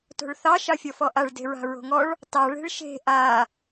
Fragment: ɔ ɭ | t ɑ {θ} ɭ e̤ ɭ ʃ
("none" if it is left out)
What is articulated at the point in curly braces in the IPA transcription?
none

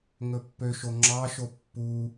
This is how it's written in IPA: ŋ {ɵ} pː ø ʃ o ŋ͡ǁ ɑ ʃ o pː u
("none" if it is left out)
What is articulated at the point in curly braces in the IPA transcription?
ɵ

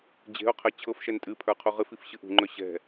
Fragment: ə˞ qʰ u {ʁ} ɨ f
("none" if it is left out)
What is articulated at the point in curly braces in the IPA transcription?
ʁ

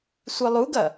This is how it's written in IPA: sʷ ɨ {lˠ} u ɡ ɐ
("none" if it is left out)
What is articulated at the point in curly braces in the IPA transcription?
lˠ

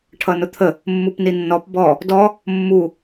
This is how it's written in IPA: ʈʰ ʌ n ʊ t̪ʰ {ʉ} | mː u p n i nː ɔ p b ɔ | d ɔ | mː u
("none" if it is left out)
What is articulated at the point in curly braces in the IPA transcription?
ə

